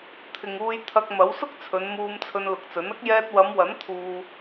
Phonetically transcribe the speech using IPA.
t̪ʰ ɪ˨ ŋ uː˧ j t̪ʰ ɐ˧ k̚ m ɐ˨˥ w s ʊ˥ k̚ t͡sʰ ɵ˨˧ n m uː˧ m t͡sʰ ɵ˧ n l ʊ˨ k̚ t͡s ɵ˨˥ n ɐ˥ k̚ j ɛː˧ t̚ w ɐ˨˧ m w ɐ˨˥ n t̪ʰ uː˧

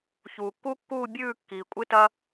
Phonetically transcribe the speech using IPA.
ç uː˩ kː u˦ kː uː˦˨ bʲ ʉː˦˨ kː iː˩ kʷʼ ɨ˦ t ɐ˦

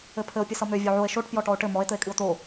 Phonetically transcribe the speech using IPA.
ɘ pʰ ɘ o̯ pʲ ɨ s ʌ m ø vʲ o ʕ o e̯ ʃ o ʈ p j ɔ ʈ ɔ o̯ ʈ ɘ m ɔ e̯ t̪ ɘ e̯ kʼ ɨ o̯ t̪ o

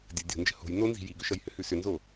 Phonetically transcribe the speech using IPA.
dʲ ə dʲ o̤ n d͡ʒ ə̤ h o̤ j n o n z i̤ j i ɡ ʏ ʃ ʌ j h ʏ h ʉ s ʏ n z o

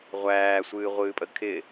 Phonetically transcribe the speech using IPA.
ʁʷ æː sʷ ɨː ʁʷ ɨː pʼ ə kʰ ɪ

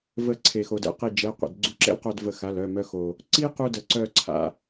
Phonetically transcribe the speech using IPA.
v ə˧ ǀʰ e˩ x o˩ d ɛ̰˧ q i˧˩ d͡ʒ ɛ˩˧˩ qʷ ɛ̰˩ d ɡ͡ǀ u˧ ǁ ɛ̰˥ l q œ˧ d v ə˧˩ x a˩˧˩ l œ˩˧˩ m œ˧ x o˩ | ǀ i˥ q u˧ d ə˩ ǀ œ˧˩ ǀʰ a̰˩

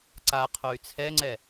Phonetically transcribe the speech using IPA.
ǀ a qʰ o y̯ t͡sʰ ɛ ŋ͡ǀ ɛ

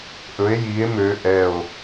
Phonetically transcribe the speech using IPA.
ʔ ɵ e̯ j i e̯ m ø ʔ ɛ o̯

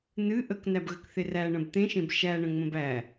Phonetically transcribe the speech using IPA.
n ɨ ʔ ə k n æ b ɣ ə k θ e r æ ɳ ə̃ b t̪ ẽ ʃ ẽ b ʃ æ ɳ ə̃ ŋ͡m ə̃ b æ

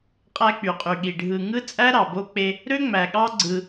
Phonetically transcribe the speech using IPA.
qʼ æ˦ k͡p y˨ qʼ y˨ ɠ i˨ ɖʱ ɯ˨ ŋ ɯ˦ t͡sʼ æ˦ ɾ ɑ˨ b o˦ k͡p e˦ | ɾ ø˦ ŋ͡m æ˨ ɠ ɑ˦ ɡ͡ǀ ɯ˦

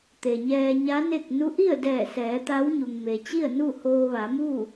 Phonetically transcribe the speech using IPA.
t̪ e˩ ɲ ɛː˧ ɲ a˧˥ n e˥˨ k̚ n u˧˥ ʔ i˥˨ ə̯ d ɛː˧˩ s ɛː˩˧ t̪ a˧˥ w ɲ u˩ ŋ m e˩ t͡ɕ i˥˨ ə̯ n u˥˨ h oː˧ ʋ a˩˧ m u˥˨

